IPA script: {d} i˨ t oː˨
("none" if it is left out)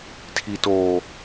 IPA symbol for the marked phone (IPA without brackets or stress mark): tʰ